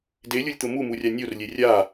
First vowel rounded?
no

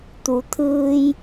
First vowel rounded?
yes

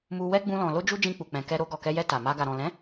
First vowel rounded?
yes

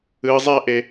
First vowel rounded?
no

